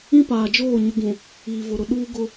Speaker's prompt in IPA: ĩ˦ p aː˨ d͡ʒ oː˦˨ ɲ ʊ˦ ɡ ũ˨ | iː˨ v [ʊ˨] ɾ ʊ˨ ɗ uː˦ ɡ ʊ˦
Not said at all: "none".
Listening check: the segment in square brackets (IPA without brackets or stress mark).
ʊ˨